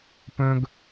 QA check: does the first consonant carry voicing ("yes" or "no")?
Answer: no